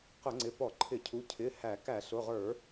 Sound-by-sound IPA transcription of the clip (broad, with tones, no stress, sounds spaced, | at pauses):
q ʊ˧˩˧ ŋ͡ǀ ɪ˩˧˩ p ɔ˧˩˧ ǃʰ ɪ˧˩˧ cʰ u˩˧˩ cʰ ɪ˩˧˩ h æ˧˩˧ k æ˧˩˧ ɬ ʊ˩˧˩ ʁ ə˞˧˩˧